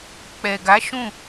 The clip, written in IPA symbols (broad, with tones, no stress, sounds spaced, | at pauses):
k͡p ɛ˨ ɡ a˨˦ ʃ ũ˦˨